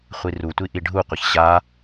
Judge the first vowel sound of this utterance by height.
high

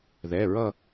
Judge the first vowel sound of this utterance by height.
mid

